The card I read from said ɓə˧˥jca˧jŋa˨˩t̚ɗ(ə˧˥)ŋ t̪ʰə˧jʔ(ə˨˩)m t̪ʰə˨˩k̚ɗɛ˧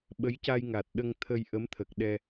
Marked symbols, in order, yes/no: no, no

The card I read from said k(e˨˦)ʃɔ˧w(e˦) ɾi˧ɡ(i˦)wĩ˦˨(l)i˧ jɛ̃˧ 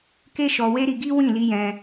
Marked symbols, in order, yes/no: no, yes, yes, yes

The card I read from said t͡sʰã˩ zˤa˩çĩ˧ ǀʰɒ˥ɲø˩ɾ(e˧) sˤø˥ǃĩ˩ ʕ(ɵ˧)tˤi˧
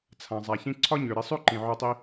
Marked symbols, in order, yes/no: yes, no

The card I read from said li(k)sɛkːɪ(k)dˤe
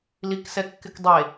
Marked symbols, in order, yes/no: yes, yes

